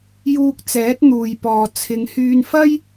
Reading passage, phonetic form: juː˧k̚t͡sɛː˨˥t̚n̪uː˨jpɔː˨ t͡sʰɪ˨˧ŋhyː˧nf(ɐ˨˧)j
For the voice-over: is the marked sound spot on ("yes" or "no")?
no